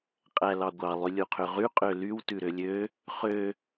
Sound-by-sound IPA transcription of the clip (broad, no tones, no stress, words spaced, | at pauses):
qʼælɑɡʷɑ lˠylʲuqʰøʁy qʼølyw tʉɾølʲø | χø